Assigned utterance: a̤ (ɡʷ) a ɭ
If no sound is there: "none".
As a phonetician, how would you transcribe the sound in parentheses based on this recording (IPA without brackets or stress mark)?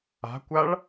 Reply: kʷ